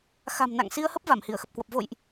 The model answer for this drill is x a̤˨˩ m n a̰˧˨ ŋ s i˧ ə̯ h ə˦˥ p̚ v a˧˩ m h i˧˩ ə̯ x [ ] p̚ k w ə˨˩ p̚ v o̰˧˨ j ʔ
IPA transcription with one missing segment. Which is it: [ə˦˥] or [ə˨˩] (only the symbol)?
ə˨˩